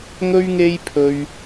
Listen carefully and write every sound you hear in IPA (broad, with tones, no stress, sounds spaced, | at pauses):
ŋ ɵ˥ ɥ ŋ e˥ j pʰ ɵ˧ ɥ